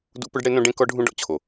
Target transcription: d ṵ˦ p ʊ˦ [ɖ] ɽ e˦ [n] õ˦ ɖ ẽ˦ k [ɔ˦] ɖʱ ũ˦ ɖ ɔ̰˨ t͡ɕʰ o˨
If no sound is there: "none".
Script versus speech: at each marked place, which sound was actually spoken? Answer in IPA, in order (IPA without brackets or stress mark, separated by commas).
ɖ, n, ɔ˦